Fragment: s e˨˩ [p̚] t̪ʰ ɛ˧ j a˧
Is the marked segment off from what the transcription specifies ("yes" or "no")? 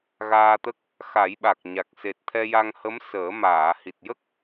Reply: yes